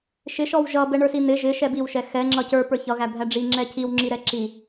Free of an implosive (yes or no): yes